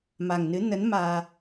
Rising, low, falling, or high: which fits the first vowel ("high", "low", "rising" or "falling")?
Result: low